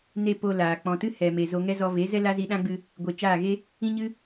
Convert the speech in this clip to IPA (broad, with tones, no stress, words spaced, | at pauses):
ne˦ po˧laː˨ k͡pɔ̃˨tɨ˦ hɛ˨me˨ zo˧ŋɛ˦ zɔ˧ ve˨˦zɛ˦ la˦zi˧ɗã˦ɡ͡bɨ˧ | ɡʷe˨t͡ʃaː˦˨ɣe˦ | ĩ˦ɲɨ˦